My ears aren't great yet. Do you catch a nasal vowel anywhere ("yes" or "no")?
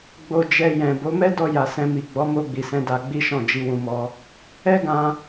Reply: yes